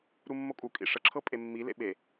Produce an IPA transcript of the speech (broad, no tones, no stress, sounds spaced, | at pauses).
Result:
ɾ u mː o kʼ u kʼ ḭ ʂ ə ǁʰ ɤ pʼ e mː i l ḛ ɓ e